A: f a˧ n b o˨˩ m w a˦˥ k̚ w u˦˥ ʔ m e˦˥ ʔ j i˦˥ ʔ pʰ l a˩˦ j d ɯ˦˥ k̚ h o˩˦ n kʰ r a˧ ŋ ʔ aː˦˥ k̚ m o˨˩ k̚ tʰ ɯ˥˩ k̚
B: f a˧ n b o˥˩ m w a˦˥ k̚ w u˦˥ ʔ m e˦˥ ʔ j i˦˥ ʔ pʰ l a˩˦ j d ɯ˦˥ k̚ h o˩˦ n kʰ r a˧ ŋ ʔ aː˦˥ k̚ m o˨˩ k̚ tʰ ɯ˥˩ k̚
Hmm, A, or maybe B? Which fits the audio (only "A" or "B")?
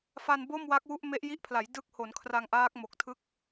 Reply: B